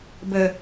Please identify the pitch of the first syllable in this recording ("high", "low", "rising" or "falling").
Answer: low